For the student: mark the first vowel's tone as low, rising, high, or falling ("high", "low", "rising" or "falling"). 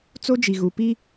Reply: high